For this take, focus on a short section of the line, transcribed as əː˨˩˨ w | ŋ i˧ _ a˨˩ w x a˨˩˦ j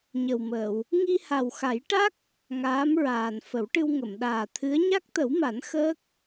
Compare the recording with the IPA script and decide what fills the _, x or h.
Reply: h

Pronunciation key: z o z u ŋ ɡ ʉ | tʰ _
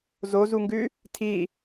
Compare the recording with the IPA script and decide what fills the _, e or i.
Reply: i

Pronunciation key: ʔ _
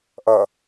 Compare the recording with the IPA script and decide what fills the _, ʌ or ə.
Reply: ʌ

